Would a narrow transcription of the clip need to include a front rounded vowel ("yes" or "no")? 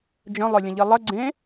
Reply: yes